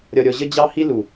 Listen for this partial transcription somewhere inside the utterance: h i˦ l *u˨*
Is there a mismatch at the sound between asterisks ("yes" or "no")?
no